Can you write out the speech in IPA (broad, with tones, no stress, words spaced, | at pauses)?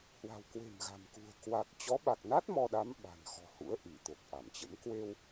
hwa̤˨˩wkwe̤˨˩mɣa̤˨˩mkṳ˨˩ə̯ kwa˨˩k̚ t͡ɕɔ˨˦ɓa˨˩k̚na˦˥t̚ mɔ˧ɗa˨˦m ɓa̤˨˩nxɔ̤˨˩hṵ˧˥ə̯ ʔi˧˩t̪o˨˩k̚ ʔa˧˩mt͡ɕə̰˧˥m kwe˧w